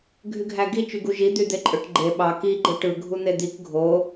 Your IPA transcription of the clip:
ɡʱ y ɡʱ æ ɡ i t͡ʃ y ɡ u ʒ i d̪ y d̪ e ǃʼ ø ʈ ɡ͡ǃ e ɓ ɑ k i ɡ͡ǃ ɯ ʈ ɯ ɡʱ u n̪ e d̪ i k ɡʱ o

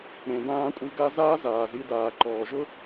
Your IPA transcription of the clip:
ɾ ẽ˩ d ãː˧ kʷʼ i˧ ɡ a˥ z aː˥ z aː˩ z i˧ d aː˩ ǃ ɔː˩ ʒ ʊ˥

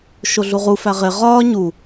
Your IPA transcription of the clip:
ʃ o ɮ u ʁ u f æ ʁ e ʁ ɒː ɲ u

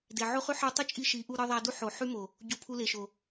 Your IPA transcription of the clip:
d e˨ ʕ o˦ χ y˦ ħ ɯ˧ tˤ y˦ t͡ʃʼ i˧ ʃ i˨˦ ʔ u˧ ɾ ɯ˧ ðˤ æ˧ d u˦ ħ o˨ ħ y˦ m o˨ | ɟ o˧ pʰ u˧ l e˨ ʃ o˨

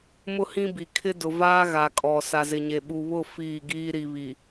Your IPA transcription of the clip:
m ʊ˦ h ĩ˦ b i˨ kʰ ɪ˦ d ʊ˨ v aː˦ ɣ a˨ kʼ ɔ˨ s a˨ z ɪ˨ ɲ e˨ ɓ u˨ β ʊ˦˨ f iː˦˨ ɡ iː˦ ɾ i˨ β i˨

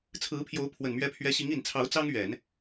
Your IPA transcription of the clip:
t͡sʰ ɹ̩˧˥ pʰ j o˧˥ ʊ̯ pʰ w ə˨˩ n m ɥ ɛ˧˥ pʰ ɥ ɛ˧˥ ɕ i˧˥ ŋ i˨˩ n t͡sʰ ɑ˧˥ ʊ̯ t͡s ɑ˥ ŋ ɥ ɛ˨˩˦ n

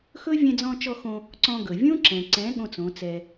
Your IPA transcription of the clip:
x ɵ˦ vʲ ɛ̃˧ d͡z ɔ̃˧ t͡ʃ ɔ˧ x õ˧ | ǀ ɔ̃˧ ɡ ɵ˨ vʲ õ˦ ǁ ɛ̃˨ ǀ ɛ̃˨˦ ɠ õ˦ t͡s õ˨˦ t͡s ɛ˧

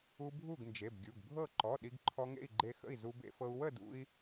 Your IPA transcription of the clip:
u˧ bʱ u˥˨ ɡ n d͡ʒ e˩˧˩ b ɡʲ u˩˧˩ ɡ bʱ ɤ˥˨ ǃ ɔ˩˧˩ ɗ i˧ ɡ ǃʰ ɔ˧ ŋ ḛ˥˨ i̯ ɡ͡ǃ e˧ x ə̰˥˨ i̯ z u˧ b ḛ˧ f ɤ˧ u̯ w ə˥˨ d ṵ˧ i̯

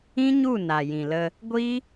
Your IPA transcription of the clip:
ĩ˦ ɲ u˦˨ n a˨ j ĩ˨ l ə˧ | ɡʷ i˦

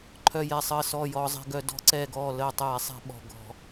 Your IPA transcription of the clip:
ǃʰ œ˧˩ j ɛ˧˩ sˤ əː˧˩ s ɔː˧˩ j ɔː˧˩˧ zˤ ɛ̤˧˩˧ ɡ œ˧˩˧ d ɔ̤˧˩˧ ǀ ɛː˧˩ ɡ ɔː˧˩ l əː˧˩ tˤ ɛː˧˩˧ sˤ ɛ̤˧˩˧ ɓ ɔ̤˧˩ ɡ ɔ̤˧˩˧

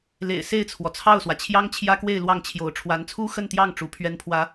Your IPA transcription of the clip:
l ḛ˨˩ ɪ̯ s e˥˩ ɪ̯ t͡sʰ w ɔ˩ t͡sʰ ɑ˥˩ ʊ̯ s w ä˩ t͡ɕʰ j ɑ˥ ŋ t͡ɕʰ j ä˥ k w e˥˧ ɪ̯ l w ɑ˥˩ ŋ t͡ɕʰ j o˧˥ ʊ̯ ʈ͡ʂʰ w a˧˥ n t͡sʰ u˥ x ə˥˧ n t̪ j ɑ˥˩ ŋ ʈ͡ʂ u˧˥ pʰ ɥ ɛ˥ n pʰ w ä˥

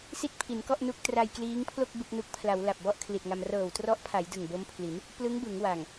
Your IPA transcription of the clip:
s i˥˩ t̚ pʰ i˩˦ n k ɔ˥˩ ʔ n u˦˥ k̚ t r a˧ j k l iː˦˥ ŋ pʰ l o˥˩ k̚ b ɯ˥˩ k̚ n u˦˥ k̚ pʰ l a˩˦ w l a˨˩ p̚ b ɔ˥˩ ʔ kʰ l i˨˩ t̚ ŋ a˧ m r ɤː˨˩ w t r ɔ˦˥ ʔ pʰ a˩˦ j d ɯ˨˩ ŋ b o˦˥ m pʰ l i˩˦ n | p l ɯ˦˥ ŋ b ɯ˩˦ ŋ w a˨˩ ŋ

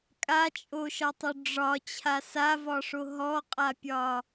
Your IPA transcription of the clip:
kʼ a t͡ʃʼ o ʃ ɒ tˤ o ɖ͡ʐ ɒ t͡ɕʰ a s a v ɒ ʂ o ɦ ɔ qʼ a pʲ ɒ

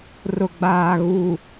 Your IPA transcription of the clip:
r ʊ˨ ɡ͡b aː˨ ɣ u˨

